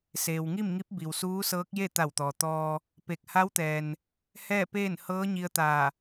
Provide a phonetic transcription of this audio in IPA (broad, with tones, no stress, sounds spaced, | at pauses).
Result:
s eː˩ w ŋ i˥˨ m ŋ i˧˥ p̚ b i˩ w s uː˧˥ s ɤː˧˥ k̚ j e˥˨ t̪ a˧˩ w t̪ ɔː˩ t̪ ɔː˧ | p e˧˩ k̚ h a˧˥ w t̪ ɛː˩ n | h ɛː˥˨ p eː˥˨ n h ɤː˧˥ ɲ i˧ ə̯ t̪ aː˧˩